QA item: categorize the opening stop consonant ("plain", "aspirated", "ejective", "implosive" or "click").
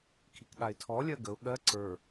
aspirated